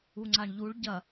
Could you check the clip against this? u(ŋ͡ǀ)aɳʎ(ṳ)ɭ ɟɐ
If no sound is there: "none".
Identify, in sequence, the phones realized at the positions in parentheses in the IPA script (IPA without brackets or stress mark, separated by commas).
ŋ͡ǀ, u